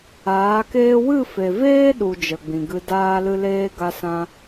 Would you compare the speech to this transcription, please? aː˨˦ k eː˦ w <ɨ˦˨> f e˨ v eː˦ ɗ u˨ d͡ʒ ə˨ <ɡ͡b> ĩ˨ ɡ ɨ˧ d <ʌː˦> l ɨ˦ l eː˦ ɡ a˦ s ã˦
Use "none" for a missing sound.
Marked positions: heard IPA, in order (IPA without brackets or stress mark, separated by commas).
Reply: ɨ˦˨, ɡ͡b, aː˦